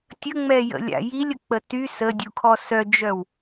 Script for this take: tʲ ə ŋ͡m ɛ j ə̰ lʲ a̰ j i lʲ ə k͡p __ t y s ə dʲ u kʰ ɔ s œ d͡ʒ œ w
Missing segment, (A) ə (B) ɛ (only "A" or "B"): A